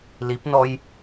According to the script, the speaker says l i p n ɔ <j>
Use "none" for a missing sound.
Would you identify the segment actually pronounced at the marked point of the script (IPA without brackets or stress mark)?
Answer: j